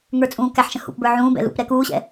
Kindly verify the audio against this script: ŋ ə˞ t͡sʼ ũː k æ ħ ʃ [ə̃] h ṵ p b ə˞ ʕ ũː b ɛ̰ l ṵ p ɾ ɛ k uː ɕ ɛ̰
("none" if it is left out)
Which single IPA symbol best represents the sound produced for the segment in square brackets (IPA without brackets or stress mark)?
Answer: ə̃